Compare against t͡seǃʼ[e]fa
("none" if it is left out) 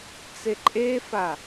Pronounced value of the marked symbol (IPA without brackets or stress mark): e